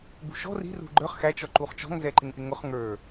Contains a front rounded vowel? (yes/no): no